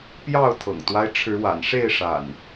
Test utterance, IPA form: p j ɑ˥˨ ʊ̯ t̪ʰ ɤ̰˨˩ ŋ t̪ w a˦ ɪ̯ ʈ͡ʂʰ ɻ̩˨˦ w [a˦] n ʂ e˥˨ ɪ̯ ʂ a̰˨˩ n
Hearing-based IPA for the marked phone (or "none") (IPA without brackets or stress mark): a̰˨˩